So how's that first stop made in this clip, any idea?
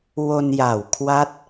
aspirated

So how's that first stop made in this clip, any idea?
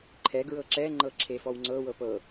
click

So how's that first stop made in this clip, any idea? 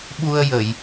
implosive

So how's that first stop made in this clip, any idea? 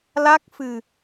plain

